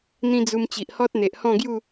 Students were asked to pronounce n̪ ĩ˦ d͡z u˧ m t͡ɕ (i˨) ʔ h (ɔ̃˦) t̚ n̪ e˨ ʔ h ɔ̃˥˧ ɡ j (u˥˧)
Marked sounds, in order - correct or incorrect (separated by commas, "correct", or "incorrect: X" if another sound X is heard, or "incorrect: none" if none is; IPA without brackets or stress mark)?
correct, incorrect: ɔ˦, correct